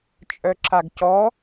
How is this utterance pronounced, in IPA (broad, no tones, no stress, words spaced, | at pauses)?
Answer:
t͡ʃʼœǁaɡcɔ